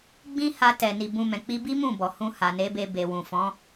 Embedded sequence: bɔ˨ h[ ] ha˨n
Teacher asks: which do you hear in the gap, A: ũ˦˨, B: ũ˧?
B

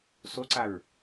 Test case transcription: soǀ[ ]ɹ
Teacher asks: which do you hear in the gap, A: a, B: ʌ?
A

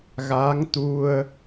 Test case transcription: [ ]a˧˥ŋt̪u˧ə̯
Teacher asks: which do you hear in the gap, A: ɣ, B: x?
A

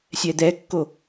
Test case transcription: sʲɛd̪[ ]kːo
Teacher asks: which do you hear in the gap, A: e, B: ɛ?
B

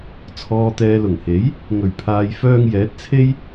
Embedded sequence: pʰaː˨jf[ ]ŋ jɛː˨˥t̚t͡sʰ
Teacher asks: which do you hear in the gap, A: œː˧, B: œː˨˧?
A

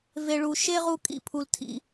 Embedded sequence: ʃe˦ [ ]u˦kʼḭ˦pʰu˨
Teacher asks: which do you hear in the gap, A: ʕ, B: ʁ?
B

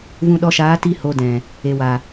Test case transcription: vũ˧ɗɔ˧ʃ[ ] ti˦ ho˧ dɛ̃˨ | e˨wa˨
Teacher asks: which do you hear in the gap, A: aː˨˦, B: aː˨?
A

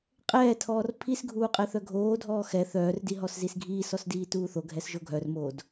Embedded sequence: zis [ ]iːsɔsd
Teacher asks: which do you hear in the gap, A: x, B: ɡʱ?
B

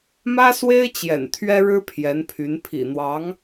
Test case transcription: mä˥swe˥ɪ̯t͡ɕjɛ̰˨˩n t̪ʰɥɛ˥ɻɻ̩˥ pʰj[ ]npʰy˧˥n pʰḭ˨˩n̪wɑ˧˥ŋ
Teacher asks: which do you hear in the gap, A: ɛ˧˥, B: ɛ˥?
A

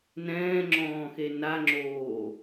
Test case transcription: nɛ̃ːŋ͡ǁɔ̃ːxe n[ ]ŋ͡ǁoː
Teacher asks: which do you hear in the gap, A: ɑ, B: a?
B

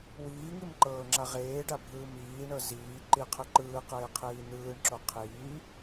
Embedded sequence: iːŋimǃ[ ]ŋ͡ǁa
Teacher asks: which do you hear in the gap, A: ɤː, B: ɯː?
A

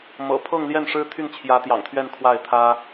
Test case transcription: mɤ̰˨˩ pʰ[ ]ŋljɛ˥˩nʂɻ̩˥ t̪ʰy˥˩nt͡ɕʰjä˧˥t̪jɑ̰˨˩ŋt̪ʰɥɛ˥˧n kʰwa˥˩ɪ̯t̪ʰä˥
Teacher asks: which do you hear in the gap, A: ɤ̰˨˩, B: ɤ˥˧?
B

